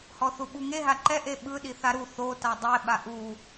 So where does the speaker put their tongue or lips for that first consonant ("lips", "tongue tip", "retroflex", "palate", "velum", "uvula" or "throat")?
throat